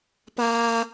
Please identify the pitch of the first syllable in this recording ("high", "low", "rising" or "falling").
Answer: high